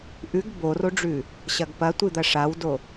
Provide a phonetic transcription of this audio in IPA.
ʔʉɡ boroɖ͡ʐʉ | ɕɐɡpɐtʷɨ d̪ɐʂawdo

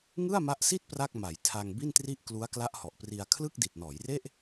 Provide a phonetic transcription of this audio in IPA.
ŋɯ˥˩a̯ma˦˥ʔsi˥˩t̚ pra˥˩k̚ma˩˦j tʰa˧ŋbi˥˩ntri˥˩ʔ klu˦˥a̯kla˦˥ʔhɔ˨˩ʔpri˧a̯ kʰlɯ˥˩k̚di˨˩t̚nɔː˩˦jre˥˩ʔ

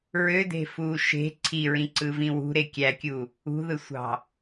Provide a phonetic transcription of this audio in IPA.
ɹøde̤fuː ʃe̤ ǀʰiɹĩǀɯvĩ wṳɾe kʲækʲu | ṳðɯsʷɑ̤

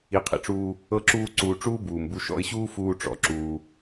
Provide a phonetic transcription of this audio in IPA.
i˧qʰḭ˧ʈ͡ʂuː˦ | ɤ˦ǁuː˦ǀuː˧ ʈ͡ʂuː˦buː˨mbu˧ ʃɔ̰˧ɪ̯ɕuː˦fuː˧ ʈ͡ʂɔ̰˨ǁuː˧

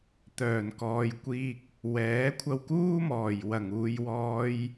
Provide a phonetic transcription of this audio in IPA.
t̪œː˨˩nkɔː˨jkʷiː˧k̚ | wɛː˨˥kʷʰɐ˧wkuː˥mɔː˨˩j wɐ˨˩ŋuː˨jwɔː˧j

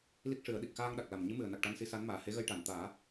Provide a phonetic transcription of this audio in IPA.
li˦˥k̚ʂɨ˨˩˦ə̯ɗi˨˩k̚ xaː˧ŋɗa˨˩k̚la˨˩mɲɨ˧˥ mɨ˨˩ə̯na˨˩k̚ ʈa˧nsi˧˥sa˧˥nmaː˨˩ he˧˥ɣə˧j ʈa˨˩˨nt̪aː˨˩˦

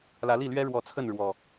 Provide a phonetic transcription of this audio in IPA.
lä˨˦li˥˨lɥɛ˦ ɻwɔ˨˦t͡sʰə˥˨nɻwɔ˨˩

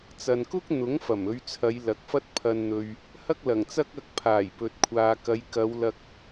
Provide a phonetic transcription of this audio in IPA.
t͡sɐ˨nkʊ˥k̚n̪ʊ˨˥ŋfɐ˨˩m ɵ˨˧ɥt͡sʰɐ˨˧jlɐ˨k̚fɐ˥t̚ pʰɐ˧nn̪ɵ˧ɥ | hɐ˥k̚lɐ˨˩ŋt͡sɐ˥k̚ ɐ˧k̚ pʰaː˨˩jpɵ˨t̚kʷʰaː˨kɐ˨˧j kɐ˨˧wlɐ˧k̚

